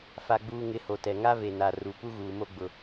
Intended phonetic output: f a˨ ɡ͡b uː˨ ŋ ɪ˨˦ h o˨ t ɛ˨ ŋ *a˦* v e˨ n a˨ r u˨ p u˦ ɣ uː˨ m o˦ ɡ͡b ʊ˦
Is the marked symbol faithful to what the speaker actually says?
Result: yes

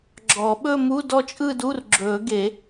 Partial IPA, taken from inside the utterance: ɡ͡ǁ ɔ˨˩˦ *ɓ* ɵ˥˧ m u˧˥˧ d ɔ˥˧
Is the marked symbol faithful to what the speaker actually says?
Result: yes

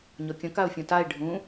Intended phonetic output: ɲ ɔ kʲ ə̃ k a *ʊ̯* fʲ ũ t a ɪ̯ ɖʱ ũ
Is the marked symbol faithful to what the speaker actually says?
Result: yes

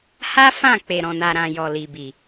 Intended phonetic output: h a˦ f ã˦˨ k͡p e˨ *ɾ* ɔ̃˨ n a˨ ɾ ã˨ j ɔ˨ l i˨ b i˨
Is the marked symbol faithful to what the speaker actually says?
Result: yes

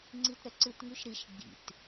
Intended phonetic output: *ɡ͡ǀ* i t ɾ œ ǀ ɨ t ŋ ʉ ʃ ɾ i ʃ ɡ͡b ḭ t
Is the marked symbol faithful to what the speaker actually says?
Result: no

